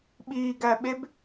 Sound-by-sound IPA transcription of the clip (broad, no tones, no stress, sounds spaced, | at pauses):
ɓ i ɡ æ ɓ e b